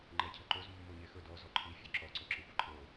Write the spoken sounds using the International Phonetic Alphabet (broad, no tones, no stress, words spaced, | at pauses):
ŋ͡ǃɛcʰəǃoz mːoɲexɵ dɔ zɔǃʰi fʲoǁɔ ǀoǁœxʷɛǃʰo